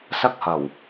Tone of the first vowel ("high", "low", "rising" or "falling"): high